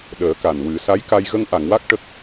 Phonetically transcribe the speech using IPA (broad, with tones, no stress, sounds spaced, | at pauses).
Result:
ɗ əː˨˩˦ k a˨˩ n w ɨ˨˩˦ s a˧˥ j k a˧ j ɣ ə˧ ŋ ʔ a˨˩˨ ŋ w a˦˥ k̚ ʈ ə˦˥ k̚